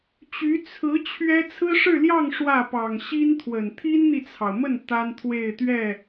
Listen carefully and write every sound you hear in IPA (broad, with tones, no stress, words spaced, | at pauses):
t͡ɕy˧˥ t͡sʰɹ̩˧˥ t͡ɕʰɥɛ˥ t͡sʰɹ̩˥ʂɻ̩˥˧ljɑ˥˧ŋ ʂwä˥˩pɑ˨˩ŋ ɕi˥nt̪ʰwə˨˩n t̪ʰi˥nn̪i˨t͡sʰɑ˩ʊ̯mə˥˩n t̪a˥nt̪ʰwe˥˧ɪ̯t̪ɥɛ˥˩